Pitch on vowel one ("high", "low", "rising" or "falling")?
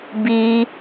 high